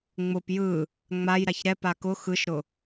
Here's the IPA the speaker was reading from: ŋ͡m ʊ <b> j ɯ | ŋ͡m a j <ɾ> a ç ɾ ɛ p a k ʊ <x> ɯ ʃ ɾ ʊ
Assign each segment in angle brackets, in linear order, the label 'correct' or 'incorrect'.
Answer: incorrect: p, correct, correct

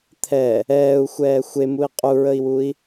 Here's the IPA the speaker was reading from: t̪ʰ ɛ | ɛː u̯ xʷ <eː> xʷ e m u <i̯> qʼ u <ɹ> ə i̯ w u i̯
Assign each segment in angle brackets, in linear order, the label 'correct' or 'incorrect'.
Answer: incorrect: ɛː, correct, correct

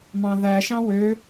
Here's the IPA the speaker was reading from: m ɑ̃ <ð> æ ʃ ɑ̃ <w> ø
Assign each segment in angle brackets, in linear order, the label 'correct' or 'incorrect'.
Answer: correct, correct

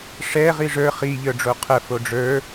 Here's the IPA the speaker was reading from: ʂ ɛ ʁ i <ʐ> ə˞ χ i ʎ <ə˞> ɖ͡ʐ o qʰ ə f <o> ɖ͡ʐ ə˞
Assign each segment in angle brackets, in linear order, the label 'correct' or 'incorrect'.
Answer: correct, correct, correct

